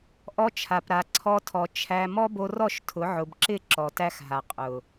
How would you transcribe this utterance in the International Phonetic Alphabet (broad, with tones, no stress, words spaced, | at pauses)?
ʔɔ˧t͡ʃʰa˨pɾa˨ ǀʰɔ˧tʰɔ˨ t͡ʃʰæ˧ mɔ˦bo˧rɔ˦˨ʃ tʰʊ˨˦ ʕʊ˨bǁɪ˦˨ ǁɔ˨tæ˦xɦa˨ qʼʊ˨